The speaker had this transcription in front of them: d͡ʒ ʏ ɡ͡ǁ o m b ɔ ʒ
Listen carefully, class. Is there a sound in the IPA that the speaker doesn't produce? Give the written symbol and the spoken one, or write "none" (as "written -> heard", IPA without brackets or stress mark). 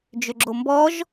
none